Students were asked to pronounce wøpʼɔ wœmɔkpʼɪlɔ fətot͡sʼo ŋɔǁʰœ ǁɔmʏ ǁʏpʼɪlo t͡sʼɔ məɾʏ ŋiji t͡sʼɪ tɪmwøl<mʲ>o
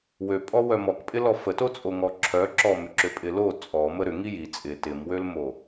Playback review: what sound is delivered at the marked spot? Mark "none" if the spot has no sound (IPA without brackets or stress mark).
m